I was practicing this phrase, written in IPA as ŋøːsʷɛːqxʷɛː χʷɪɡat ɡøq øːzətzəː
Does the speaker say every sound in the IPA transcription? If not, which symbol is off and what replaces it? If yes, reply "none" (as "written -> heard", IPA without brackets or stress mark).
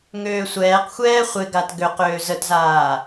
əː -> aː